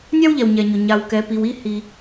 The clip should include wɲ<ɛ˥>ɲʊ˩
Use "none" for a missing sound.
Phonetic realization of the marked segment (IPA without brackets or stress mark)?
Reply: ɛ˩